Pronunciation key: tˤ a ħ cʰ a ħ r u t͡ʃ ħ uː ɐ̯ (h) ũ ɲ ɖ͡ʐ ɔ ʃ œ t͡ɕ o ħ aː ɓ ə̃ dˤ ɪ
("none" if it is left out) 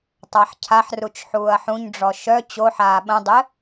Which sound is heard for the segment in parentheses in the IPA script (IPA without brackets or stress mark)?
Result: ħ